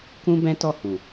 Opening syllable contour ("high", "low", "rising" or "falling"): high